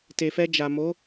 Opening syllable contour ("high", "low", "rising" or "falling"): low